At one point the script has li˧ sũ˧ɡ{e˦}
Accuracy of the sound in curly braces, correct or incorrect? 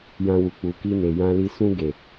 incorrect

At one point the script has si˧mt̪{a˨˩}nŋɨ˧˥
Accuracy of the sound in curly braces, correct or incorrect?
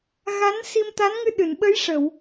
incorrect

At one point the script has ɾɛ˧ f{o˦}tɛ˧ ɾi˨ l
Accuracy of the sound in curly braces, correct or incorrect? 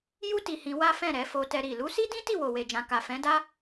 incorrect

